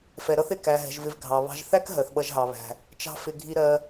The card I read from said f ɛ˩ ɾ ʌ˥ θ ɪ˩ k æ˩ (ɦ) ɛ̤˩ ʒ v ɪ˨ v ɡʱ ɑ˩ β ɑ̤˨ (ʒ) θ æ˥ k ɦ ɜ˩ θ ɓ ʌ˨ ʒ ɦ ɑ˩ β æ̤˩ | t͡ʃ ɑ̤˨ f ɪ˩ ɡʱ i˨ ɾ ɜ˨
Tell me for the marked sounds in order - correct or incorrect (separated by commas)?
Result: correct, correct